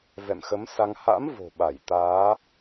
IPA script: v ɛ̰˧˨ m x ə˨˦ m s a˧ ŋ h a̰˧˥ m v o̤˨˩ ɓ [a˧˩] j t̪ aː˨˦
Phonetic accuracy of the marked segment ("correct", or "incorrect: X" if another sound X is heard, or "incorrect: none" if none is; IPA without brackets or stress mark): correct